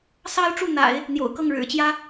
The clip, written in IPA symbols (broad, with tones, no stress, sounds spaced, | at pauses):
s ɑ˥ ʊ̯ ʈ͡ʂ u˥˩ n̪ a̰˨˩˦ ɪ̯ | n̪ j o̰˨˩ ʊ̯ k ɤ˥˩ ŋ ɻ ɻ̩˨˩ t͡ɕ j ä˥